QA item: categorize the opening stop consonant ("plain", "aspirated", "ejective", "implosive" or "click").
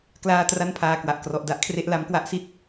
plain